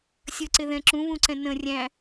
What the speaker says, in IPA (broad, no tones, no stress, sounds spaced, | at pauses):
sʲ ə ǀ ɪ ð ɛ̃ ǁ ũ β ũ ǀ ɛ̃ n ə̃ rʲ æ̃